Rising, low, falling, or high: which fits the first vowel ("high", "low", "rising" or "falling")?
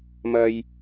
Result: high